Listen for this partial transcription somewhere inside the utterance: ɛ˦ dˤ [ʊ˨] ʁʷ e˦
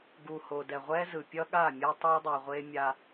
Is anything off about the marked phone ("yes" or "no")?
yes